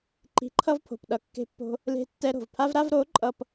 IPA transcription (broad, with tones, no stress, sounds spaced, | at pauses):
ǃ i̤˧ ǃʰ ʌ˦ v pʰ o̤˨ p ɗ ʌ˧ kː e̤˦ pː o̤˦ | l e̤˧ tː ɛ˧ ɾ o̤˨ v pʰ a˦ v ɾ a˦ v ɾ o˨˦ ǃʼ ʌ˦ p